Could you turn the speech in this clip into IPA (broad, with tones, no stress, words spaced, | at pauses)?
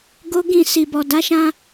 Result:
ɡo˦ɡĩ˦˨ si˨bɔ˨ da˨˦ʃã˧